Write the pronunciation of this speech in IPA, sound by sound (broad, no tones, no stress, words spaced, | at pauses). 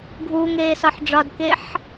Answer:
ɡʱuːŋeːsɒħ ɖ͡ʐɒdkeħ